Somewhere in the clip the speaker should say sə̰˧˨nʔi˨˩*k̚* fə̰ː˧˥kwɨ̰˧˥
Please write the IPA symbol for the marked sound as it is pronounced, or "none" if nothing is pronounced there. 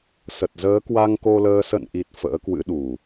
t̚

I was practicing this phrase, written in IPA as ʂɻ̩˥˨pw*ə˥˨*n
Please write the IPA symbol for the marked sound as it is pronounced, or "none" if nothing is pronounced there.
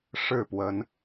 ə˨˦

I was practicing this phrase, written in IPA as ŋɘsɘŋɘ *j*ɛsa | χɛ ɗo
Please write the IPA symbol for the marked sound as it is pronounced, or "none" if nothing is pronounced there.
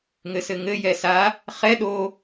j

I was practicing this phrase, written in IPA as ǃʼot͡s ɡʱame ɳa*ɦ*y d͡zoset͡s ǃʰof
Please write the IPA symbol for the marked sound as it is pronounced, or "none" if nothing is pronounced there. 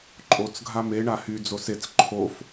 h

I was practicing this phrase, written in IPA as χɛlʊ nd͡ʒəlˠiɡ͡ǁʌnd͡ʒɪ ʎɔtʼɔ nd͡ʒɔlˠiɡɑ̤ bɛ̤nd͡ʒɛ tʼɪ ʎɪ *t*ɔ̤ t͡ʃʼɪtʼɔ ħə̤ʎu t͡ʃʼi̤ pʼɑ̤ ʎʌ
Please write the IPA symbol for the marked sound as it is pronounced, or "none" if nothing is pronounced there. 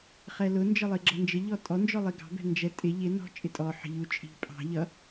n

